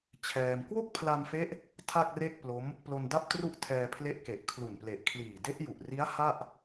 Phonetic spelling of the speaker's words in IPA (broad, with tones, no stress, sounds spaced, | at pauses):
t͡ɕʰ ɛː˧ m k w o˥˩ k̚ pʰ l a˧ m f e˦˥ ʔ | tʰ a˥˩ k̚ r e˥˩ k̚ p l o˦˥ m | p l o˧ n d a˥˩ p̚ t r u˥˩ ʔ tʰ ɛː˧ pʰ l e˦˥ ʔ k e˨˩ ʔ kʰ l u˨˩ n p l e˨˩ ʔ kʰ l iː˨˩ d e˦˥ ʔ j u˨˩ ʔ r i˦˥ a̯ h a˥˩ ʔ